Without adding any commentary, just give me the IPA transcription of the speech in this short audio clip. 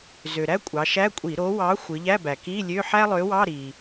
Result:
z ø˩ ɾ æ˥ kʷʼ ɑ˩˧ ʃ æ˧˥˧ kʷʼ i˧˩˧ ɾ o˨˥ w ɑ˨˥ xʷ ɯ˩˧ ʎ æ˧˥˧ b æ˩ k i˧˥˧ lʲ ø˧˥˧ ħ æ˥ lˠ ø˨˥ w ɑ˧˥˧ ɾ i˩

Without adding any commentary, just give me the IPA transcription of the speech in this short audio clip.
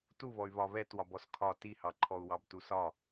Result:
t u β ɔ y̯ β ɒ β ɛ t w ɒ b ɔ s kʰ ɒ t i h ɑ ǃʰ ɔ u̯ w ɑ b t u s ɒ

